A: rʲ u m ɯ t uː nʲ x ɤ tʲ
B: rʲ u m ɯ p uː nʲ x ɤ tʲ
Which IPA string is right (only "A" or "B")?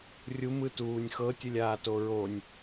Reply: A